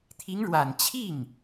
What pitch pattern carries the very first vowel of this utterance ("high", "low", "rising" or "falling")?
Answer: rising